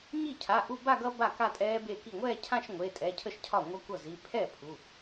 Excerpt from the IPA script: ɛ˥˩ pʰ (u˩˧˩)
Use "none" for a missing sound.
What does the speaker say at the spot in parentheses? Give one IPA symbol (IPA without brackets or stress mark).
u˩˧˩